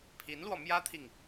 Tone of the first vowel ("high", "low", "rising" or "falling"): rising